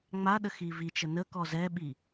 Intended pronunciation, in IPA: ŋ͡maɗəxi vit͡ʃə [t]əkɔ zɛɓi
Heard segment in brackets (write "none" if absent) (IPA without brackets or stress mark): n